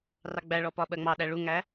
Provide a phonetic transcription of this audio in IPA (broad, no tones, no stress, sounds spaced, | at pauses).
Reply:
r ɑ ɡ͡b æ ɭ ɔ p ɒ ɓ ɜ ŋ͡m ɑ ɗ æ ɭ u ŋ æ